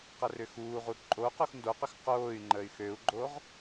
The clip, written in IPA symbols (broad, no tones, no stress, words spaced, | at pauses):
qɐrʏxuːʁu ǃʼoqux ndoqʏx qoːy̯ ŋ͡ǃəy̯xøu̯ɡ͡ǃoʁ